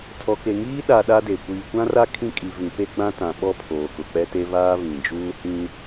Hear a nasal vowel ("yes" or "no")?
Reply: yes